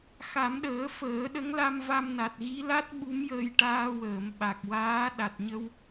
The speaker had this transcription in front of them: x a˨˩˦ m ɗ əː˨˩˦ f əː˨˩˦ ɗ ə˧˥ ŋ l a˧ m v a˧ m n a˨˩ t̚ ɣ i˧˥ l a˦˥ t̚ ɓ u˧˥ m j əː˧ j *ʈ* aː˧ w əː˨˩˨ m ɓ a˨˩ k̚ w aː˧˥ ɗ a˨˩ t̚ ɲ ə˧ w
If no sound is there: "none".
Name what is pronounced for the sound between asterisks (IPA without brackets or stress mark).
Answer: ʈ